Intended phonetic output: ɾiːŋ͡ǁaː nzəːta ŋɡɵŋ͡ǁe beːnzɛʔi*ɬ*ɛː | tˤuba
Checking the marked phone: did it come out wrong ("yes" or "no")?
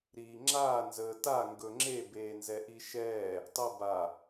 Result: yes